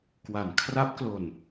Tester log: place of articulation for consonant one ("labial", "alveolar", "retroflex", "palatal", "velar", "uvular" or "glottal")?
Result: velar